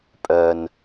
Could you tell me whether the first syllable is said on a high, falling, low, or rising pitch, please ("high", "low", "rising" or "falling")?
low